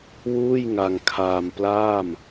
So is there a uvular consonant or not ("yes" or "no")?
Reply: no